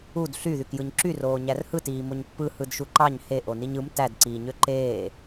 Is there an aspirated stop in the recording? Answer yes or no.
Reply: no